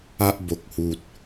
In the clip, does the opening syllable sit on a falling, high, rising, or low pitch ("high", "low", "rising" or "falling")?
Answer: high